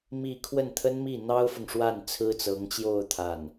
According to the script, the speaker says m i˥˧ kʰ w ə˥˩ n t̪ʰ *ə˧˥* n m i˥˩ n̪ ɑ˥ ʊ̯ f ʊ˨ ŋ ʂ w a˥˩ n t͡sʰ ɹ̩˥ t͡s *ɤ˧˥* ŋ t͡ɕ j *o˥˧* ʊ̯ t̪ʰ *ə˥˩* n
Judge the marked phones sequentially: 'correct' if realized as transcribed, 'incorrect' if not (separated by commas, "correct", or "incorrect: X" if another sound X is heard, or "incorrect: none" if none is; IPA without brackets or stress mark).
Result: incorrect: ə˥, correct, correct, incorrect: a˥˩